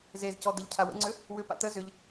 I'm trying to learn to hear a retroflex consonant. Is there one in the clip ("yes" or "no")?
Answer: no